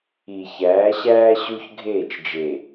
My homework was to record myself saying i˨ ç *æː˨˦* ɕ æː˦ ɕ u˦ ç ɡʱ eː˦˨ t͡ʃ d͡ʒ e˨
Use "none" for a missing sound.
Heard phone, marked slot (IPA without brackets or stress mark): æː˨˦